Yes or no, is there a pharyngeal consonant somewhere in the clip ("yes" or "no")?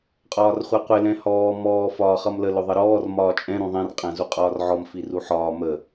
yes